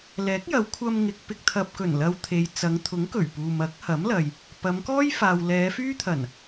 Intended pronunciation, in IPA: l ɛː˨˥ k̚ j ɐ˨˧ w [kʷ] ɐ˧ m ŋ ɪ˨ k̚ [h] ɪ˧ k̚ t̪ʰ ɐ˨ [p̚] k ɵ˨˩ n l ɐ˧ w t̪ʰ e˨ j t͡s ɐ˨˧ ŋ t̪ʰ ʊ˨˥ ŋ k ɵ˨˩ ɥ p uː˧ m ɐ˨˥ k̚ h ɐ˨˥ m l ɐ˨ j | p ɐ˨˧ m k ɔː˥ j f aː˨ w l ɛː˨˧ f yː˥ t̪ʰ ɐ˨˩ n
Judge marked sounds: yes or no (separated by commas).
no, no, yes